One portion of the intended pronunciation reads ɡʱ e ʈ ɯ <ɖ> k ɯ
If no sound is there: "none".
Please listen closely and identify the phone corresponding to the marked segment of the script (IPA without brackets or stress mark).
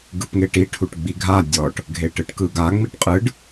ʈ